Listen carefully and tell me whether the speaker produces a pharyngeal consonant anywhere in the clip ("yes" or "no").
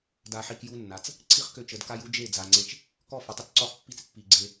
yes